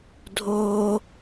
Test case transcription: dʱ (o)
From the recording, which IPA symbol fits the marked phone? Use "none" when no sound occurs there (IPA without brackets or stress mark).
o